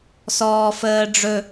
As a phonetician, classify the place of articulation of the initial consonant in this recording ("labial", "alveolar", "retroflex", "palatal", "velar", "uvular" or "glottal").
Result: alveolar